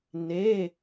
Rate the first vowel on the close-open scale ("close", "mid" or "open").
mid